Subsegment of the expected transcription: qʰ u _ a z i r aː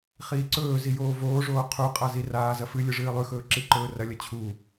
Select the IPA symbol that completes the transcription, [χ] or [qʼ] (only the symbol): qʼ